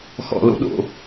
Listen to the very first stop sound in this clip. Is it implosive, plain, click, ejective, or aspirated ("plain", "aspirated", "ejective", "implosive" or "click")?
implosive